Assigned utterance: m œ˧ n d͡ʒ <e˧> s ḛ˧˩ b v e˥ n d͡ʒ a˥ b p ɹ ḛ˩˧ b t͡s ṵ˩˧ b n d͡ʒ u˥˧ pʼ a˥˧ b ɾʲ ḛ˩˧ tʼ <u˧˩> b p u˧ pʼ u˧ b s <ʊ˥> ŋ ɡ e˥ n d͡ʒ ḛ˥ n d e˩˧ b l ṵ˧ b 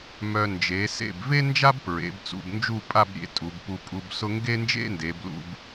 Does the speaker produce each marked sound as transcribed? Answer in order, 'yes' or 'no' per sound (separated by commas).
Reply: no, no, yes